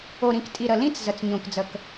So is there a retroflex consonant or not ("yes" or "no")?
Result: no